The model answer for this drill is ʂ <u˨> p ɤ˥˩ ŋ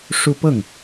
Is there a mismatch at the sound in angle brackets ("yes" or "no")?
yes